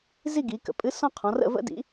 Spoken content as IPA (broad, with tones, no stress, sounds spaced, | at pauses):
z i˥˧ ɡ i˩˧ k ə̰˩˧ pʼ ɨ˨˥ s ɔ̃˥˧ qʰ ɔ̃˩˧ r ə̰˥˧ v ə̰˥ d ḭ˨˥